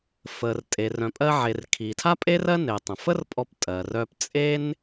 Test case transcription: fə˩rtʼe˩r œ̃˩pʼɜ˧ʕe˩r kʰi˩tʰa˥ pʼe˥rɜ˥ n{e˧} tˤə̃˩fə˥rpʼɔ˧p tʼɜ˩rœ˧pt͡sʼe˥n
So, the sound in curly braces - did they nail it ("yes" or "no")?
no